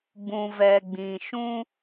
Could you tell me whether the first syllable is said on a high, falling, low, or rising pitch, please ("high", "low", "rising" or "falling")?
low